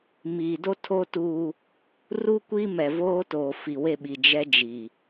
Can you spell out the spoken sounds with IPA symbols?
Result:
miː˨do˦ tʰo˦tuː˦ | ru˦kʷiː˦mɛ˨voː˦ toː˨fi˨we˦˨ɓi˨ d͡ʒɛ˦d͡ʒiː˨

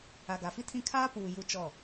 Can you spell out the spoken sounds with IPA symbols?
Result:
a˨ɡa˨fi˦tʰĩ˦˨ kʰaː˦puː˨ ju˦t͡ʃɔ˦˨

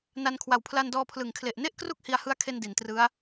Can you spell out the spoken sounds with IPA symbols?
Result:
na˧nkʰwa˨˩w pʰla˧ndɔː˧pʰlɯ˨˩ŋkʰle˨˩ʔ ne˥˩ʔkru˥˩k̚ hi˧a̯hɯ˦˥a̯kʰe˧n di˩˦ntrɯ˦˥a̯

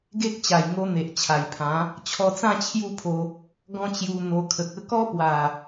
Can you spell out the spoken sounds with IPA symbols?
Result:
ɡe˦k̚ t͡ɕa˨˩jŋo˧ n̪e˨ʔt͡ɕʰa˨˩jpʰã˨˦ | t͡ɕʰɔ˧t͡sã˥˧ t͡ɕʰju˥˧pʰo˧ | ɡɔ̃˦t͡ɕju˧ n̪o˧kʰə˨k̚ə˦ kɔ˦pwa˨˩

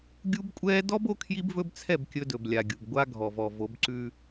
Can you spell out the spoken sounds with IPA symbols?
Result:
ɡʲu˦bkʷʼɛː˦ dɔ˦b o˦kʰji˦bvɵ˦bt͡sʰɛ˦˨b kʲɵ˦dɵ˨blʲa˨ɡʲu˨b ɡʷa˦ɡʱɔ˨vɔ˨ vo˨˦b ǀʉ˦

